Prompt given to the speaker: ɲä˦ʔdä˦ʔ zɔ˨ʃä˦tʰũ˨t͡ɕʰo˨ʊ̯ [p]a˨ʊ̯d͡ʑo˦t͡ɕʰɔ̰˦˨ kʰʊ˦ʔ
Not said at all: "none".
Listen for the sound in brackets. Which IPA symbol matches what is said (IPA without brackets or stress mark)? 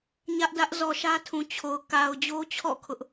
k